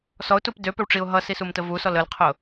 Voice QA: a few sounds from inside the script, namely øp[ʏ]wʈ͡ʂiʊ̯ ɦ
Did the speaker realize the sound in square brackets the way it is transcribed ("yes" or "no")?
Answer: yes